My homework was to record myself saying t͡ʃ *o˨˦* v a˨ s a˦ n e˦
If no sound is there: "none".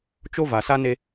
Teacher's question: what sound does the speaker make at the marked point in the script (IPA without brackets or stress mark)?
o˦